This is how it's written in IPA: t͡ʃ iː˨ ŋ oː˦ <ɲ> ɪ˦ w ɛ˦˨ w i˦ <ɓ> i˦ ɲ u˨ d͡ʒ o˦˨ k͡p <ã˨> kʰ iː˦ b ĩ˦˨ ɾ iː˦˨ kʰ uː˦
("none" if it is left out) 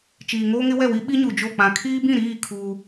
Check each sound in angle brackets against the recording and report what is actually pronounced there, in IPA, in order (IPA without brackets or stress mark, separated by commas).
ŋ, ɓ, ã˨